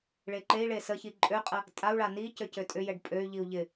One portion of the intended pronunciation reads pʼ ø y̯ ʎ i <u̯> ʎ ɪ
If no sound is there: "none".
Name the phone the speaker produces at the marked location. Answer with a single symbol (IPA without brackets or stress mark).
u̯